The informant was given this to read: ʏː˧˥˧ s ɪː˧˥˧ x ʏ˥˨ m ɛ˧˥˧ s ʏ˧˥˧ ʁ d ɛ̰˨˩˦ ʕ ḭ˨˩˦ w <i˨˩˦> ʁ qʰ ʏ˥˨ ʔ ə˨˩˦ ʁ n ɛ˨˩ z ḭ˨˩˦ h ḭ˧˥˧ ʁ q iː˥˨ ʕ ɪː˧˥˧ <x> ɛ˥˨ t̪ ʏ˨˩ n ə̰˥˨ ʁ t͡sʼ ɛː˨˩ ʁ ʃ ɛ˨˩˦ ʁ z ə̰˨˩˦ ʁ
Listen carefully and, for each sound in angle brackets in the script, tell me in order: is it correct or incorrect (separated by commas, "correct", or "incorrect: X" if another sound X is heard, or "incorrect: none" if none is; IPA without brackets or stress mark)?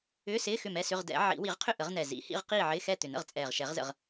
correct, correct